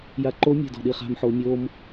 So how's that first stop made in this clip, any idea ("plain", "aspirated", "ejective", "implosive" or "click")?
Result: click